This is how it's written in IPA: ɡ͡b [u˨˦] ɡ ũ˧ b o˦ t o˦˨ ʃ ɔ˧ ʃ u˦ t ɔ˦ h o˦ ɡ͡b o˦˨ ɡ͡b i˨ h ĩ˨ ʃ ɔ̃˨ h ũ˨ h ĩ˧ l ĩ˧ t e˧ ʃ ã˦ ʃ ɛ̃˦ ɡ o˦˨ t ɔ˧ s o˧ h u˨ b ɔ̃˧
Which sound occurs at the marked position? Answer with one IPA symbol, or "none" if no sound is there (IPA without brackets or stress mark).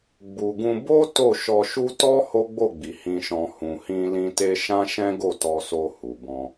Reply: u˨